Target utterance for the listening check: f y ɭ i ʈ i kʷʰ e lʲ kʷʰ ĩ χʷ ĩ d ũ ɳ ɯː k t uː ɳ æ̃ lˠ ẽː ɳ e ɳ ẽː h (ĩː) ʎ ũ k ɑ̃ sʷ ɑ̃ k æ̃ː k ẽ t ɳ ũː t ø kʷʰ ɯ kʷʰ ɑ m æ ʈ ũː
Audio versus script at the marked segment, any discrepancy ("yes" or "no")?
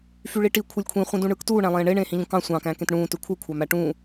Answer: yes